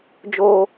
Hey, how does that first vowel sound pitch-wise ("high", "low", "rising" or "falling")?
high